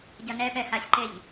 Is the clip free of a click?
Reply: no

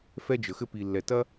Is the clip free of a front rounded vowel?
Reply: yes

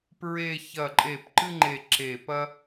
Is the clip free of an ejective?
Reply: no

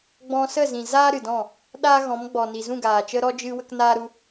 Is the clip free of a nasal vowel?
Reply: no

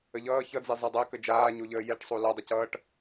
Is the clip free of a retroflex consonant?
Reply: no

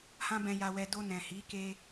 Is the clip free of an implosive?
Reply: yes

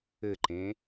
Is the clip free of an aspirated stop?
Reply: yes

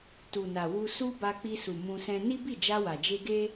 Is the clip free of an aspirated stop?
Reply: yes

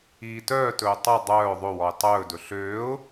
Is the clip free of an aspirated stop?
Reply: yes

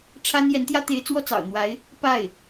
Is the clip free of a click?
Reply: yes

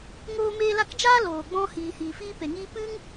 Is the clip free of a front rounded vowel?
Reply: yes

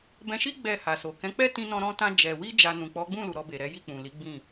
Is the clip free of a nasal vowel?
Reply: no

